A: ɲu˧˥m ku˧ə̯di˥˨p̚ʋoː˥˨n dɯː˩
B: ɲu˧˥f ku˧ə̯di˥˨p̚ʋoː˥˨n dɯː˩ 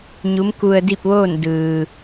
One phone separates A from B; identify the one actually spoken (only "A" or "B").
A